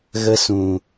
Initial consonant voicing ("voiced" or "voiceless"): voiced